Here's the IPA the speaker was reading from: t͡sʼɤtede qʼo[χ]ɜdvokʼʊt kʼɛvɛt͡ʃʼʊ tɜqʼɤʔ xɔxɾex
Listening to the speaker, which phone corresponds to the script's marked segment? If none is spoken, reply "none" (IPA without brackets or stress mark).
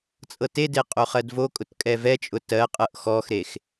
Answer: χ